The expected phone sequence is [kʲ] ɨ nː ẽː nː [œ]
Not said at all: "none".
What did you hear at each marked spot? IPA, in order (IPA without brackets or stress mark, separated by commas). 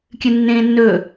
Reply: kʲ, ɵ